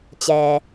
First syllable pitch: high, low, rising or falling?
low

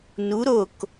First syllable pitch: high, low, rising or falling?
rising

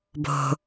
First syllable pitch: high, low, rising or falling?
low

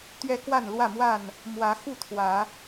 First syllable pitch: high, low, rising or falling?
high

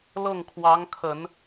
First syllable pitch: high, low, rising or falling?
falling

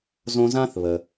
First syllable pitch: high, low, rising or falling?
high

